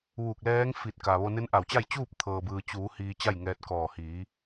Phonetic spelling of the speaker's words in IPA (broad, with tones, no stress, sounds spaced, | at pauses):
ʋ uː˧˩ k̚ l ɛː˧˥ ŋ f i˧˩ t̚ k a˩ ʋ o˧ n e˧˥ n ʔ a˧˩ w t͡ɕ a˥˨ j t͡ɕ uː˥˨ p̚ t̪ʰ ɤː˩ b ɯː˩ t͡ɕ uː˩˧ h iː˧ t͡ɕ a˥˨ j ŋ ɛː˧ t̚ k ɔː˧˩ h iː˩˧